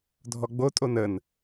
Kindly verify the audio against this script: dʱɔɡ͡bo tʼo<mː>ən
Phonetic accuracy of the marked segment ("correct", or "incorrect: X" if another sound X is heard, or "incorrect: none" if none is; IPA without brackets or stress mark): incorrect: n